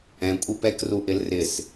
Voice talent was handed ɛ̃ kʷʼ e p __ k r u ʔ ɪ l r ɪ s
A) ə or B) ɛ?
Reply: B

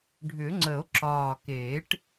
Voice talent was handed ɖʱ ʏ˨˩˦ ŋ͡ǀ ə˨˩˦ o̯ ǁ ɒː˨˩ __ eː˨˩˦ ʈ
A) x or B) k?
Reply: B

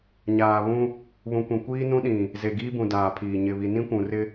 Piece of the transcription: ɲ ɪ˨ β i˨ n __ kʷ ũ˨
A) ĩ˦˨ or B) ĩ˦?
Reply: B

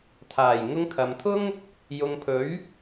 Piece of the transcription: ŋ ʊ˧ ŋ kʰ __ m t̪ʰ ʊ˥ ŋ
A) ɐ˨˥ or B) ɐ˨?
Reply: B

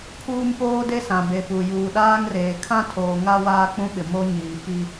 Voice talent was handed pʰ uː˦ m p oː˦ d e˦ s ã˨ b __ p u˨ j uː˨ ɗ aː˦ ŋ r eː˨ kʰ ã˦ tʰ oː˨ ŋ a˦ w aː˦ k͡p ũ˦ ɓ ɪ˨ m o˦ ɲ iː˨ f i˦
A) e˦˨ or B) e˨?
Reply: B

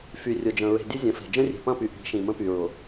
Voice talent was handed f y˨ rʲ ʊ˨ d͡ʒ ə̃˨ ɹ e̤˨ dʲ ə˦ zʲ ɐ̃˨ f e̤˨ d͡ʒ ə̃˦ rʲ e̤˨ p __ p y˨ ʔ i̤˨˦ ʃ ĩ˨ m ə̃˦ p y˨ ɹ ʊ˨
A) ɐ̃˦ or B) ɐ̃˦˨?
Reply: B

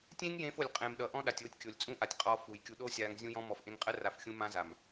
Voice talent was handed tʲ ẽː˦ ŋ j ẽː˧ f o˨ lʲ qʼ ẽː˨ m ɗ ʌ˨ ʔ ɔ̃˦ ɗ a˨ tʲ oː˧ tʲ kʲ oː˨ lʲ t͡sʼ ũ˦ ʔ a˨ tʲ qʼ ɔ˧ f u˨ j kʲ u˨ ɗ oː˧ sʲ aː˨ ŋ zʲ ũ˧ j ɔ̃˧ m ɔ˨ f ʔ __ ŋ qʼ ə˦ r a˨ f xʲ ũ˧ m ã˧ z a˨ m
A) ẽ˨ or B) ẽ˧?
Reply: B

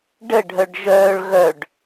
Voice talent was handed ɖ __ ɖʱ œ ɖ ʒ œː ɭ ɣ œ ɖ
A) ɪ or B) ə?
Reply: B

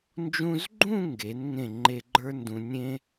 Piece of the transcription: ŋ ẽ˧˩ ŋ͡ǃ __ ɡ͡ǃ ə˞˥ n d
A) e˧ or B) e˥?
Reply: A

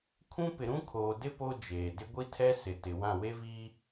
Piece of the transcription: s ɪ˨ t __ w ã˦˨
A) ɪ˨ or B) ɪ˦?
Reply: A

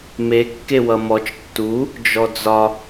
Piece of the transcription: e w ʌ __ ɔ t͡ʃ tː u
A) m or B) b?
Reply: A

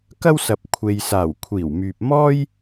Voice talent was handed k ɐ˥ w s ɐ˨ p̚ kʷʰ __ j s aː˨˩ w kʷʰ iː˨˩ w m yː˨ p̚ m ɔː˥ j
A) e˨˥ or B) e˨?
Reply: B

